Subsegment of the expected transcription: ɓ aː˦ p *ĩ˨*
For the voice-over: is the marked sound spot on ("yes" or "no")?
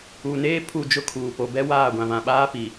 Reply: no